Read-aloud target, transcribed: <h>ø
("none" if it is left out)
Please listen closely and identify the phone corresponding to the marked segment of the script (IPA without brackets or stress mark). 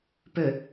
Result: p